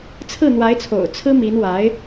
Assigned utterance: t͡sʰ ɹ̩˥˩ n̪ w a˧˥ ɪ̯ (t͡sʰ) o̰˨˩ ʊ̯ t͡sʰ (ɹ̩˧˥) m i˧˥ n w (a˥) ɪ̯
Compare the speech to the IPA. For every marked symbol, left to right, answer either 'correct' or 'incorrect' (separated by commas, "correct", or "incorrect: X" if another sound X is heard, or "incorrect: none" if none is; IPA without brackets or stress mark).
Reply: correct, incorrect: ɹ̩˥, incorrect: a˧˥